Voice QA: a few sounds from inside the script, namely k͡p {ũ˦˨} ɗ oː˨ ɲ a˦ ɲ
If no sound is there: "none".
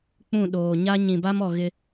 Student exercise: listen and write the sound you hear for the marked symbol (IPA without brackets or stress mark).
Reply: ũ˦˨